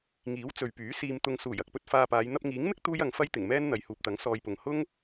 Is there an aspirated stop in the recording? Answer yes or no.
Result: no